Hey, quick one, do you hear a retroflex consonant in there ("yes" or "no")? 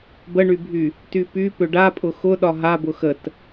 yes